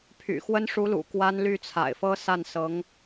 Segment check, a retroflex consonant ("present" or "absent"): present